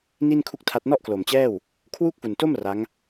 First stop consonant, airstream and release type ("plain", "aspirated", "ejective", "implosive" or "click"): aspirated